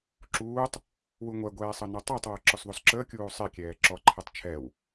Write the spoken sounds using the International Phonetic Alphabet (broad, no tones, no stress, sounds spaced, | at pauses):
ǁ uː tˤ | w u ŋʷ ɛ ɡʷ ɛː sˤ ɤ n ɔ tˤ əː tˤ w ɤ ǁ ɔ s ðˤ u s ǁ əː kʲ uː sˤ e kʲ ɛː ǁ ɔ ǃʰ e tˤ t͡ʃʰ ɛ w